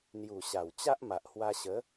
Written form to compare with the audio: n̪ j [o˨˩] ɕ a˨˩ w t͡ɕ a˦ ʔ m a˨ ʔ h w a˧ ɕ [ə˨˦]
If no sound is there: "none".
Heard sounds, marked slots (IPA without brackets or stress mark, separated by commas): u˨˩, ə˨˦